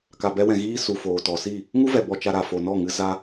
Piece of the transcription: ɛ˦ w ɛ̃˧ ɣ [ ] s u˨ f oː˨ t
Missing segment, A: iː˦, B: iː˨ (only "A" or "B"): A